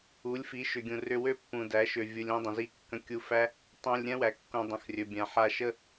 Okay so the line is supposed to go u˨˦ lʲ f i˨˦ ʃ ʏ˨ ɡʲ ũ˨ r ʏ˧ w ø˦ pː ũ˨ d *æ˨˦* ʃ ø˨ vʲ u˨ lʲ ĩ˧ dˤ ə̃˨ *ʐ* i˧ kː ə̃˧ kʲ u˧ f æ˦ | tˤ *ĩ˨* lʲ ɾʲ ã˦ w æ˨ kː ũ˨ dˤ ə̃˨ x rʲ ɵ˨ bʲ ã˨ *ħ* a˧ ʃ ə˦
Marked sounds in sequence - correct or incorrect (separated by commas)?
correct, incorrect, correct, correct